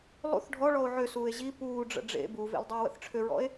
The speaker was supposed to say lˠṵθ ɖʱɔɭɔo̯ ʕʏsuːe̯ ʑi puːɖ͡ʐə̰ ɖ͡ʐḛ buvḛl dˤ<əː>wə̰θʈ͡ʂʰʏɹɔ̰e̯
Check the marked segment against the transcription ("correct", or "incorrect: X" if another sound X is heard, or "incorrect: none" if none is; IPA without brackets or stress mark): correct